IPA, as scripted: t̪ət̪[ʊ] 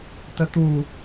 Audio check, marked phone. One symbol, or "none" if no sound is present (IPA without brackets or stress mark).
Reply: u